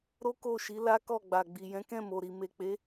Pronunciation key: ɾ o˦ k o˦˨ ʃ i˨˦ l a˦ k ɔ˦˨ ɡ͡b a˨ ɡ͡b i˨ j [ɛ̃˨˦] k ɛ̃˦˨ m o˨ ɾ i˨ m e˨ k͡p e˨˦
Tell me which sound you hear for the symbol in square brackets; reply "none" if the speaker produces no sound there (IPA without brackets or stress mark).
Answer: ɛ̃˨˦